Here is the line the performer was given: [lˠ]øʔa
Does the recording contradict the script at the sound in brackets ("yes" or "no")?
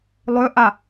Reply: no